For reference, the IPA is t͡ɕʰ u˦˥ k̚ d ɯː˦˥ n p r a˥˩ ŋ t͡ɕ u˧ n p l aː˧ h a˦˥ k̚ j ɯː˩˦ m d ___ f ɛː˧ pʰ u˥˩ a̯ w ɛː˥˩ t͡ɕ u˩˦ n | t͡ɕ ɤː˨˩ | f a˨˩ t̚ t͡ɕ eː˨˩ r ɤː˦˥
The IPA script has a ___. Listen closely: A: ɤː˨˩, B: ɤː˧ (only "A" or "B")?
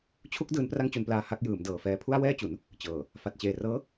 A